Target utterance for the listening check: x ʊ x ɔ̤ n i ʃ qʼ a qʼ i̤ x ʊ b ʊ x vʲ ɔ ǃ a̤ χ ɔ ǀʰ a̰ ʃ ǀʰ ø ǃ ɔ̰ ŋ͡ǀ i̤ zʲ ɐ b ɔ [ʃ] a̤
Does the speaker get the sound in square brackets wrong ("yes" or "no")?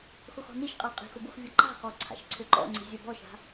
no